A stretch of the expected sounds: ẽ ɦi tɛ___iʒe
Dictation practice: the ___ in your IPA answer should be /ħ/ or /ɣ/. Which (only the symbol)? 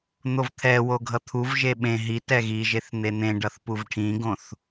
ɣ